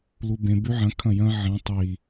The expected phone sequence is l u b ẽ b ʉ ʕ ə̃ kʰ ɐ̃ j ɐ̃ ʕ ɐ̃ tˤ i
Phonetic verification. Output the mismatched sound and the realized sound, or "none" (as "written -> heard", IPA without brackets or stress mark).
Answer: ə̃ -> ɐ̃